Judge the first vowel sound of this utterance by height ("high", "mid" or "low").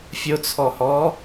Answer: high